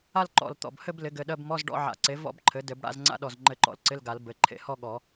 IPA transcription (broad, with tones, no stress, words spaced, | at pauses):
a˥˧l ǃɔ̰˧˩l t̪ɔ̰˧˩b hɘ˥˧b lɪ˩˥ɡɘ˩˧˩ɗɜ˧˥˧b mɔ˧˥˧zɖɔ̰˥˧ʕa̰˨˩˦ǀe˩˥ vɔ̰˥˧bǃʰɘ˩˥ dɘ˨˩˦bɽa̰˧˥˧zŋ͡ǀa̰˥˧ɗɔ˧˩z ŋ͡ǃɘ˧˩ǃɔ̰˧˩l ǀɪ˧˥˧lɡa˨˩˦l bɘ˩˧˩ ǃʰḛ˨˩˦hɔ˥˧ɠɔ˨˩˦